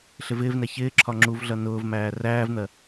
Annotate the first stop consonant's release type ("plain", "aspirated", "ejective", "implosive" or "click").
click